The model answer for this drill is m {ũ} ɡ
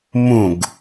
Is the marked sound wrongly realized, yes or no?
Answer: no